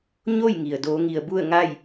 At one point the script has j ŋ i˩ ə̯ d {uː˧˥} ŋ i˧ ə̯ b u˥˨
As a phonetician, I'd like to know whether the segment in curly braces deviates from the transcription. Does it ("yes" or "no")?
yes